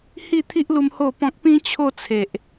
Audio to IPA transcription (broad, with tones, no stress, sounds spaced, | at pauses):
h i˥˧ t̪ʰ i˦ ʔ l u˧ m h o˥˧ p ɔ̃˦ k̚ p ĩ˦ t͡ɕʰ o˥˧ t͡sʰ e˨ ʔ